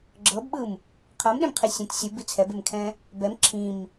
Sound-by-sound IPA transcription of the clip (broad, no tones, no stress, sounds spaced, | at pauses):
ɡ͡ǁ ɤ b ɓ ɯ m | qʰ ɤ m ɗ ẽ m qʰ i sʲ ɛ̃ t sʲ ɯ b i t͡sʰ ɛ b e m kʰ ɛ̃ | b ɛ m ǁʰ ĩ m